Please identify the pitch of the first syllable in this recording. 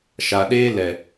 low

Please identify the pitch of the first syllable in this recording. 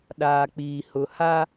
low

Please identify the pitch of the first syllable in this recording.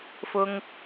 high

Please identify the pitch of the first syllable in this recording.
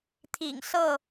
low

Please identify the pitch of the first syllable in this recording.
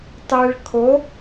low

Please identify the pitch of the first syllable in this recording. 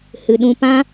low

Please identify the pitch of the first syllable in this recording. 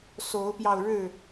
rising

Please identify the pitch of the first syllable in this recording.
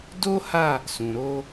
high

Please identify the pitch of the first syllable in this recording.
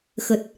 low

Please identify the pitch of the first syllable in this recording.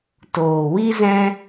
low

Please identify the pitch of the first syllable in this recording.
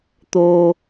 high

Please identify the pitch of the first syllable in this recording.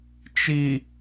low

